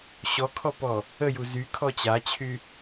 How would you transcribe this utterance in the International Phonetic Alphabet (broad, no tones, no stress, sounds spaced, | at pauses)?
ɕ ɔ kʰ ɔ p ɔ | ə j u z y kʰ ɔ t͡ɕ a t͡ɕʰ y